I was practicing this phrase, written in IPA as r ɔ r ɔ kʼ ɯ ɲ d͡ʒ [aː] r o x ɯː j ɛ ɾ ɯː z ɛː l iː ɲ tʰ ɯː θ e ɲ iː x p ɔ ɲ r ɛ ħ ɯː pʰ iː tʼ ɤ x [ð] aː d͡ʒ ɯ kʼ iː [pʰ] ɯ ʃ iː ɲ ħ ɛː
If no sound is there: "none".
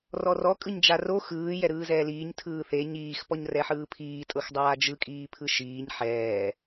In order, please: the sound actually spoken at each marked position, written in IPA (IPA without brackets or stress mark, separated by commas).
a, dˤ, pʰ